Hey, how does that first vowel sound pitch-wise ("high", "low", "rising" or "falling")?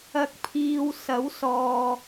low